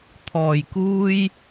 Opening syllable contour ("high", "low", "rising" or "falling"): low